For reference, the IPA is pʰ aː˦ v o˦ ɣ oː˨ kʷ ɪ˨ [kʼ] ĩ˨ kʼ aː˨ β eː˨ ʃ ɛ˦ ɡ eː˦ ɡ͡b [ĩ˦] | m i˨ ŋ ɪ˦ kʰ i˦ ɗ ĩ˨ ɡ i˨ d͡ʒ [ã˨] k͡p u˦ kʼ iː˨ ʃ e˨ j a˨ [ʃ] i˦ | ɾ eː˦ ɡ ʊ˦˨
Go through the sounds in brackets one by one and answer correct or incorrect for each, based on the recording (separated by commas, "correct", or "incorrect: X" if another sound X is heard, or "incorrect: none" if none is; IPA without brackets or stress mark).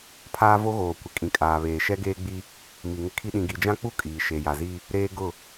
correct, incorrect: i˦, incorrect: ã˦, incorrect: z